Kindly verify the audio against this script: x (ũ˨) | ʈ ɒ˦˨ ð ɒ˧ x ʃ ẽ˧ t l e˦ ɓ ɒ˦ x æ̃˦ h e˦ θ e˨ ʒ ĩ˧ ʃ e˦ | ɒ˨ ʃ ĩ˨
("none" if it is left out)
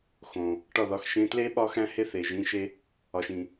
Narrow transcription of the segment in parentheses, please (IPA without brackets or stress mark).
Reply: õ˨